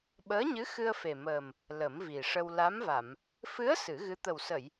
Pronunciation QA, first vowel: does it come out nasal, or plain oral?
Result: oral